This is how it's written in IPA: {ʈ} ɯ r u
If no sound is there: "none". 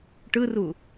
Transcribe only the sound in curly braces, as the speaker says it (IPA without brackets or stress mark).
ʈ